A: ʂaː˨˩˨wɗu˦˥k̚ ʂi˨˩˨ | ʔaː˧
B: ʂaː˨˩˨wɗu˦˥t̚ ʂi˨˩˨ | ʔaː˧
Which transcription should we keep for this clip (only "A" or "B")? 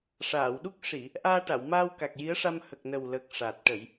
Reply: A